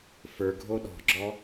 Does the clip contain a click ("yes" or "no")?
yes